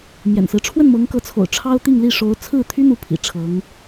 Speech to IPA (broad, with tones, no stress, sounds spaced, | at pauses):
m j ɛ̰˨˩ n s ɹ̩˦ ʈ͡ʂʰ w ə˥˩ n m ɤ˧˥ ŋ k ɤ˧˥ t͡sʰ o̰˨˩ ʊ̯ ʈ͡ʂʰ ɑ˥ ʊ̯ t̪ i˥˧ ŋ l i˥˩ ʂ o˧˥ ʊ̯ t͡sʰ ɹ̩˥˩ t̪ʰ y˥ n̪ u˧˥ pʰ ḭ˨˩ ʈ͡ʂʰ ɤ˧˥ ŋ